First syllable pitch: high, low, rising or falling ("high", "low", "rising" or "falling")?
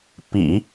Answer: low